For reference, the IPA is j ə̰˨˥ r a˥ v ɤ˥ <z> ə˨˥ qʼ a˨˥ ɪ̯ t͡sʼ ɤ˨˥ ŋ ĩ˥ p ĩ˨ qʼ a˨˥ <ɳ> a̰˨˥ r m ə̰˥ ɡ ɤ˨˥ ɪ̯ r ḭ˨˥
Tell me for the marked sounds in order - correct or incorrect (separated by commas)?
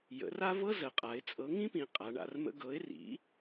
correct, correct